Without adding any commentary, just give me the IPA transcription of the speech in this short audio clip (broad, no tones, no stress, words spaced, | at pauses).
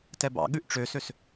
tɛbɑ̰ɠʉʔ ʈ͡ʂøsøs